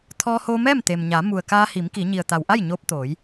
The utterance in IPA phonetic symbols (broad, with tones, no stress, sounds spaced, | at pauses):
t̪ʰ ɔː˧ h oː˧ m ɛː˥˨ m t̪ e˩ m ɲ a˩˧ m u˩ ə̯ k aː˧ h i˩˧ m k i˩˧ ɲ i˩ ə̯ t̪ a˩ w ʔ a˥˨ j ɲ oː˧ p̚ t̪ oː˩˧ j